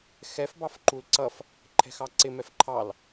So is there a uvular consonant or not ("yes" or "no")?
no